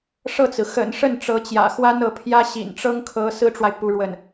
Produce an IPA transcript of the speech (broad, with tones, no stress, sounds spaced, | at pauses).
ʂ ɤ˥˩ t͡s ɹ̩˩ x ə̰˨˩ n ʂ ə˥˩ n ʈ͡ʂ ɤ˧˥ t͡ɕ j ä̰˨˩ x w a˥ n ɤ˧˥ pʰ j ä˥ ɕ ḭ˨˩ n ʈ͡ʂ ɤ˥ ŋ kʰ ɤ˧˥ s ɹ̩˥ ʈ͡ʂ w a˨ ɪ̯ p u˧˥ ɻ w ə˥˩ n